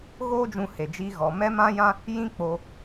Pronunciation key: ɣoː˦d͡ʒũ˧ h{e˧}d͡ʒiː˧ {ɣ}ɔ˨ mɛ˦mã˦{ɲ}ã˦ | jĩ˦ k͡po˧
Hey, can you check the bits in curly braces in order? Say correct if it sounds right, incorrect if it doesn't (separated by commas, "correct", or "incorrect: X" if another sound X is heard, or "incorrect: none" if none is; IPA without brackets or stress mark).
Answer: incorrect: e˨, correct, incorrect: j